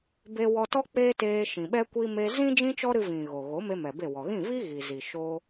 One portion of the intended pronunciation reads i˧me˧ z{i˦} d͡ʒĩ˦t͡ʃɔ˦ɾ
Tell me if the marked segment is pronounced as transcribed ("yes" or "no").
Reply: no